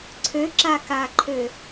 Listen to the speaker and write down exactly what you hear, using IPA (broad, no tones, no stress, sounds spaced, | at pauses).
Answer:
ǀʰ ø ǁ a k a ǃʰ ø